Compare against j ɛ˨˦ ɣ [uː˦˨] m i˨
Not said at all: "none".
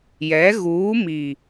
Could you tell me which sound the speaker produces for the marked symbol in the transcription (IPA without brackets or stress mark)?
uː˨˦